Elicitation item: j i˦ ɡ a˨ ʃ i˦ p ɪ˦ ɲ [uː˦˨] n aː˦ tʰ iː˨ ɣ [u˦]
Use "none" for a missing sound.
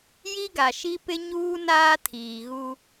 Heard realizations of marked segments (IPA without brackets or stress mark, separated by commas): uː˦, u˦